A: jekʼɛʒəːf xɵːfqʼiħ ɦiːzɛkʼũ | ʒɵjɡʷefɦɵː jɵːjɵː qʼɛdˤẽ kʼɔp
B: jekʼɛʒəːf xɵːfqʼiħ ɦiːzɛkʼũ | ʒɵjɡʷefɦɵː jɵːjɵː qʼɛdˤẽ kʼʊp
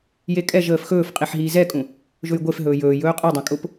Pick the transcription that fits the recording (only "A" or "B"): B